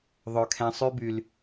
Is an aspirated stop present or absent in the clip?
present